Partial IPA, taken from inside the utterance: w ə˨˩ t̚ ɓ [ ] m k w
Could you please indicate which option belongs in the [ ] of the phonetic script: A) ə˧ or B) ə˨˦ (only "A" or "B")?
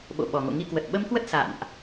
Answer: A